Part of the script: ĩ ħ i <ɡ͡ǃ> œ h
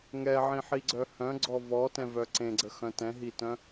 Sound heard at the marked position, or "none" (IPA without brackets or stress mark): ɡ͡ǀ